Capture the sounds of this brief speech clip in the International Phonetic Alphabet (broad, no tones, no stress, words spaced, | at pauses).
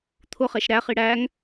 t̪ʰʊχɛʃ ɾæχi ɽæŋ